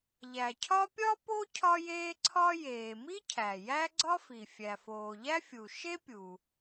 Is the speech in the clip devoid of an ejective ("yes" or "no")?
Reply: yes